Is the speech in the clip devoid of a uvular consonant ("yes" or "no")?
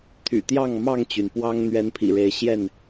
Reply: yes